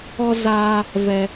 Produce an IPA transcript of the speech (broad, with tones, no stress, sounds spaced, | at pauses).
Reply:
ɔ˧ z aː˧ | v ɛ˧